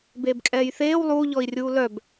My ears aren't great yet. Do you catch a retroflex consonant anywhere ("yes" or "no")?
no